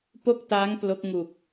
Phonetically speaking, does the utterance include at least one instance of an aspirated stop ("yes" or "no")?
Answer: no